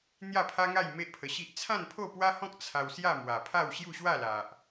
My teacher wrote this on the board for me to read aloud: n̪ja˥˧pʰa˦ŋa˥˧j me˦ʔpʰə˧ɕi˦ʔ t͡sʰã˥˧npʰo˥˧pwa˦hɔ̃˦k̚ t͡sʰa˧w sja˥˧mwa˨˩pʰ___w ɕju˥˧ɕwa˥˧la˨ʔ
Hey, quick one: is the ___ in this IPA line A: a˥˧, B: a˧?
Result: A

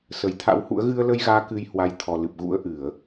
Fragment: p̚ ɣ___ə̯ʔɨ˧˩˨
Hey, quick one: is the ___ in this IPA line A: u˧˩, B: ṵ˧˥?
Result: B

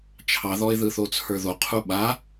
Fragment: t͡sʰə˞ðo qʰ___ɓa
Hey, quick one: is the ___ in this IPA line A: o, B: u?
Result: B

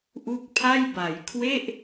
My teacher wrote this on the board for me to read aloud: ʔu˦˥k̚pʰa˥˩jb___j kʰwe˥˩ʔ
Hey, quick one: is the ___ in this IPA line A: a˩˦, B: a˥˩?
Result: A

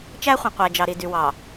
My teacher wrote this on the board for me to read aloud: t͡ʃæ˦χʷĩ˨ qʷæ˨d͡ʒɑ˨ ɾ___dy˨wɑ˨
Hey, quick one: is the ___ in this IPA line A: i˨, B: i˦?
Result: A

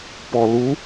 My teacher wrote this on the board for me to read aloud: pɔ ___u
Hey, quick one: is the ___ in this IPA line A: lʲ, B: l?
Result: B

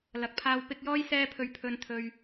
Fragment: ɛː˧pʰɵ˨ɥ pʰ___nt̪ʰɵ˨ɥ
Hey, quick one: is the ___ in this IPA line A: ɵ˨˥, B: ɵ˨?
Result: B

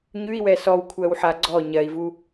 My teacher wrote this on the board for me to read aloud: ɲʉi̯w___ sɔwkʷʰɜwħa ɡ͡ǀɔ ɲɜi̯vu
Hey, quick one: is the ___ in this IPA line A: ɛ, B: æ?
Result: A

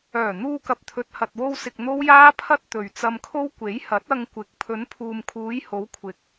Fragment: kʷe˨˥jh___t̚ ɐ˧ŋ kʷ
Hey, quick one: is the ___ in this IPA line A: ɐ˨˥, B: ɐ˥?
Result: A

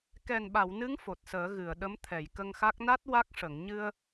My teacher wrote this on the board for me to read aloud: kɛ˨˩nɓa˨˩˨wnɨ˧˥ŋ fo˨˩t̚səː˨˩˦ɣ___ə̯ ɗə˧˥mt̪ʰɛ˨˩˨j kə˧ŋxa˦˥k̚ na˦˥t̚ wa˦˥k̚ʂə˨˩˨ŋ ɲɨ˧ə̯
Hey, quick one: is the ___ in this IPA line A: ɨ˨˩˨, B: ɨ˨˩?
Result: A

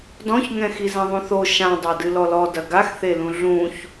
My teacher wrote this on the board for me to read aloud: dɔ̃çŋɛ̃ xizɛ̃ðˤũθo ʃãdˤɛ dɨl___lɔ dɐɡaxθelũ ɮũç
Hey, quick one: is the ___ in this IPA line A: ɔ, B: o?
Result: A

